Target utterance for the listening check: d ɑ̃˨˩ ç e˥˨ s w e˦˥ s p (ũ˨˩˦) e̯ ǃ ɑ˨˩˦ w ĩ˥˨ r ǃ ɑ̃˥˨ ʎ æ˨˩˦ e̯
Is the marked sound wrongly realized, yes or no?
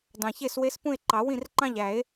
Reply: yes